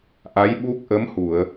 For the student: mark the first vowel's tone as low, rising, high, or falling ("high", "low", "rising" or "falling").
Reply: rising